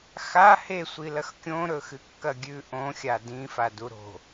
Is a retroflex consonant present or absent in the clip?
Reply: absent